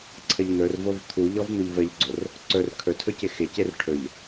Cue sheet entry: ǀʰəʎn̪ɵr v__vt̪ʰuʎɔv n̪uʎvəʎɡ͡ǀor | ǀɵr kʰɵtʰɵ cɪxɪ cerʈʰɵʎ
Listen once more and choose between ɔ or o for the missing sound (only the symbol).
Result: o